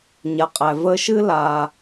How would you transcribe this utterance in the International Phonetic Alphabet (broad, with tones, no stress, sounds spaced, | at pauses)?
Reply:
ɲ a˩ qʼ æ˩ v ə˧ ʃ ɨ˥ l a˩